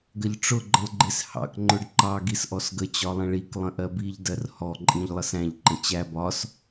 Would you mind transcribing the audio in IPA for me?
ɡəʎʈ͡ʂʊ ɡ͡ǃə̃lˠɡ͡ǃɪs hɑ̰k ŋ͡ǃʊɖǃɑ ɡisʔɔsɡə t͡ɕɒlˠə̃ɭik lˠə̃ʔɜbiʎ dɜrhɔ ǃʼĩʎlˠəsæ̃ʎ ǃə̃t͡ɕæ bɒs

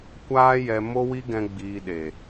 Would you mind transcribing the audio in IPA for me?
kʷaː˦jɛ˧ mo˦wi˦ɡɛ̃˧ ɡ͡biː˧ɗe˨

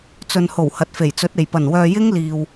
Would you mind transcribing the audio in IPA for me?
t͡sɵ˨nho˨˩w hɐ˨t̚fe˨˩jt͡sɵ˨˥t̚e˨˩j pɐ˨˩nwœː˨ jɪ˥ŋliː˨w

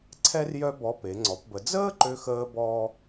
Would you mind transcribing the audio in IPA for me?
ǀʰɛ˥rjœ˥bɔ˧˥pe˩˧ ŋ͡ǀɔ˩˧pbə˩˧ d͡zəː˥ǃø˧xəː˧ bɔː˥

